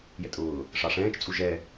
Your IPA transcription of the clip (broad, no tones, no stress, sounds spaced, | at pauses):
j ɛ̰ tʼ ʊː | ʂ ɑ ʂ ɛ̃ː t͡ʃ t͡sʼ u ʒ ɛ